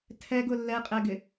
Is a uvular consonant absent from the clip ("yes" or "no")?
no